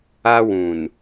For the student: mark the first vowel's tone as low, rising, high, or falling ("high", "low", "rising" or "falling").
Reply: high